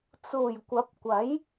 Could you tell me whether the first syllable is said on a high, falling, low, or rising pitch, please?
low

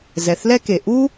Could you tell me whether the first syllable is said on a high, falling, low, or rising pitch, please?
low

